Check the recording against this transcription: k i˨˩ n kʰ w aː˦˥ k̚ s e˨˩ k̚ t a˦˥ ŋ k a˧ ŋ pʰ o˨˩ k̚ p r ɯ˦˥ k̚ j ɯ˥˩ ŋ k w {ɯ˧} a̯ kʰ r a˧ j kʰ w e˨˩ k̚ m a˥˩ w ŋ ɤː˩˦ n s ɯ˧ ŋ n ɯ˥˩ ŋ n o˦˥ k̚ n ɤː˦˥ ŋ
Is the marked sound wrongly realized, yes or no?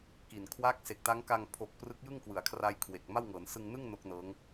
yes